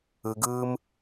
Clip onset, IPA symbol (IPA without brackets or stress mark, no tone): ɯ